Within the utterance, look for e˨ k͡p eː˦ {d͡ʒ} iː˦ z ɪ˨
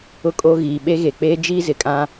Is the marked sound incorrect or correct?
correct